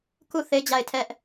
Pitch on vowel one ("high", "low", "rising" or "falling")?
falling